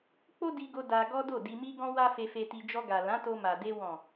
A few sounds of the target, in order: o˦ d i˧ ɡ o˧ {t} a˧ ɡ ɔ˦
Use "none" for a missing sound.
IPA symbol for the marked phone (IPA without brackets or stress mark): d